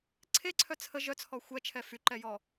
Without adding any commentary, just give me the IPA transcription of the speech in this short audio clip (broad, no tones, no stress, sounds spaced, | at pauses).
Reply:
ǀʰ e ǀʰ œ t͡sʰ ə ʒ œ t͡sʰ ɔ xʷ ɛ t͡ʃʰ ɛ f y ǃ ɛ j ɔ